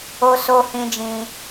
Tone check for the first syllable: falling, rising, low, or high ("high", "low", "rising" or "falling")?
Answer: high